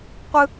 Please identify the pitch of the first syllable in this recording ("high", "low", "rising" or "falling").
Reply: high